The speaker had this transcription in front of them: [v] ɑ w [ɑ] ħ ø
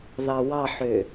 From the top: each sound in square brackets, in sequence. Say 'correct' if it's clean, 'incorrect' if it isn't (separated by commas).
incorrect, correct